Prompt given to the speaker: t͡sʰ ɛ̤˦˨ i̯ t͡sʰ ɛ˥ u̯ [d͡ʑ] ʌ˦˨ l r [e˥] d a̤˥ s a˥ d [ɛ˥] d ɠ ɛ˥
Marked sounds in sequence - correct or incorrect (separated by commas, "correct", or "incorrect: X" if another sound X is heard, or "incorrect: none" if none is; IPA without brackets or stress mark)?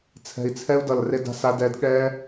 incorrect: d, correct, correct